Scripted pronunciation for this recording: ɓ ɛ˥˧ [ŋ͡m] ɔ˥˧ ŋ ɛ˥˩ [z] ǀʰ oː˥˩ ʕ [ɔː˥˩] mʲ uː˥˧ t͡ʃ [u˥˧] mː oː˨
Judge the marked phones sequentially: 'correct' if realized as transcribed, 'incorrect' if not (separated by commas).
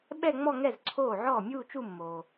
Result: correct, correct, correct, correct